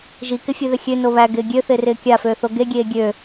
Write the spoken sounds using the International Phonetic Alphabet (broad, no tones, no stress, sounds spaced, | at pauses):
ʒ i k ɪ fʲ e ð ɪ xʲ ø n o β æ ɡ ɪː ɡʲ ø θ ɪː r ɪː kʲ a f øː θ o ɡ e ɡʲ eː ɡʲ ø